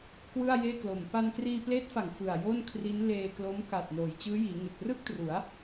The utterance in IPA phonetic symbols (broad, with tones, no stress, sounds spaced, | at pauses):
k w ɯ˥˩ a̯ j eː˥˩ k l o˨˩ m p a˧ n k r iː˧ p l eː˦˥ t̚ f a˨˩ ŋ f ɯ˨˩ a̯ j o˥˩ n kʰ r i˦˥ n l eː˧ k l o˦˥ m k a˨˩ t̚ n oː˩˦ j t͡ɕ ɯː˦˥ j iː˩˦ ŋ e˨˩ k̚ r ɯ˥˩ k̚ t r u˩˦ a̯